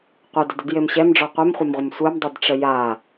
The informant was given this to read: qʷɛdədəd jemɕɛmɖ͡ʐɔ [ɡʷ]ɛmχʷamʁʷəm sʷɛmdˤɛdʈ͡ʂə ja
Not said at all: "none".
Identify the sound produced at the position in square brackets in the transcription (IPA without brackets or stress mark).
qʷ